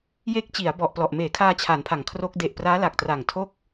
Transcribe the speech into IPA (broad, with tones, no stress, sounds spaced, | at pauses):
j e˦˥ k̚ t͡ɕ i˩˦ a̯ b ɔ˨˩ ʔ p l ɔ˨˩ ʔ m eː˩˦ kʰ aː˧ t͡ɕʰ a˩˦ n pʰ a˩˦ ŋ kʰ r o˦˥ k̚ d e˨˩ ʔ p r aː˦˥ l a˨˩ k̚ t r a˨˩ ŋ tʰ o˥˩ k̚